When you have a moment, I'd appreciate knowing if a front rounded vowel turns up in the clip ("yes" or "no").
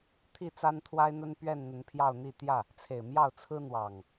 no